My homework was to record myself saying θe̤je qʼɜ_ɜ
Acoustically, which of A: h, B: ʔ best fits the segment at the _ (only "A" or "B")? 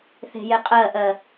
B